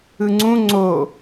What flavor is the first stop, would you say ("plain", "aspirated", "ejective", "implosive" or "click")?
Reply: click